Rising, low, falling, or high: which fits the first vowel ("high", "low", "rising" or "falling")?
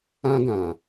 high